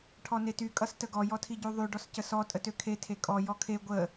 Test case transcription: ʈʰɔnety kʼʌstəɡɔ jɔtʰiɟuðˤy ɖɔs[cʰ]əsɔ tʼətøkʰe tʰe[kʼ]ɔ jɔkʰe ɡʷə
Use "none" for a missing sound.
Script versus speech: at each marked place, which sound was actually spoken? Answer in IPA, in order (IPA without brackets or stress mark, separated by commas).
c, kʼ